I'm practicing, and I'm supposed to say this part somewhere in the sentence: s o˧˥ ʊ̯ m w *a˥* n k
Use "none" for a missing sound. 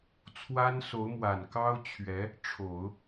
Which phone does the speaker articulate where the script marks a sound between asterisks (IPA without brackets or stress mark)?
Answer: a˨˩